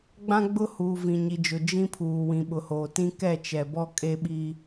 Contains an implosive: yes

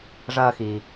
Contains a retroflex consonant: yes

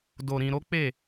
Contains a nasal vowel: yes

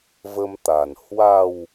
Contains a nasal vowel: no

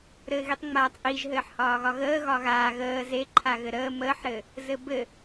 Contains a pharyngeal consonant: yes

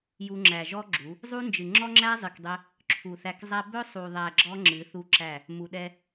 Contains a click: yes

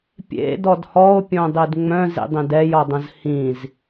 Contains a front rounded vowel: yes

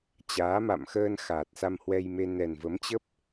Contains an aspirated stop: no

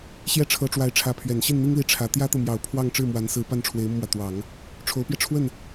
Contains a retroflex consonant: yes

